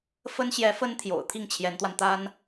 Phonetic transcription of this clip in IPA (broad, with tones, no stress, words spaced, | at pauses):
fə˥n ɕjɛ˧˥ fə˥nt̪ʰjo̰˨˩ʊ̯ t̪ʰi˥˩ŋt͡ɕʰjɛ˧˥nt̪wa˧nt̪a˥n